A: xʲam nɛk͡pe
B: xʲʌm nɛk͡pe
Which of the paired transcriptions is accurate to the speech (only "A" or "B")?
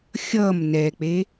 B